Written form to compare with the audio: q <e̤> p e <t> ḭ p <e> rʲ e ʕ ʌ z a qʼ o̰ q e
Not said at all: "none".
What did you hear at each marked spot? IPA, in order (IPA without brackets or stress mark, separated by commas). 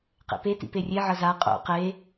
ḛ, t, e